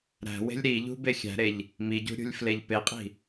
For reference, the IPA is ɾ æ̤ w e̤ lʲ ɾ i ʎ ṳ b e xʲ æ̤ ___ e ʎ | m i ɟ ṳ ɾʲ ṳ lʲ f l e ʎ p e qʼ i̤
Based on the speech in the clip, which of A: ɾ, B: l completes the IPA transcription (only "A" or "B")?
A